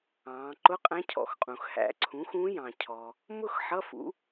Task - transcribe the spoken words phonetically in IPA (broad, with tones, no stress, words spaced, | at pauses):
ɑ̃ː˩˧ǃʊ˧˥˧qʼæ̃˧˥ cʰɔ̰˩˧xqʼũ˩xhæ̰˩˧ǀʰũ˩˥ xũ˧˥jɑ̃˩ cʰɔ˩ | mʊ˥˧x ħʌ˧˥˧fṵ˩˥